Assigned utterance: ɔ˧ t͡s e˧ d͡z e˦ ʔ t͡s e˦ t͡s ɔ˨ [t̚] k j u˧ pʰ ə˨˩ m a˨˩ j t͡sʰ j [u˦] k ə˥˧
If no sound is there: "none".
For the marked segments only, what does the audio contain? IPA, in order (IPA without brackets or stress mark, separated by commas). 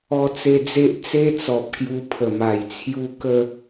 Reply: p̚, u˦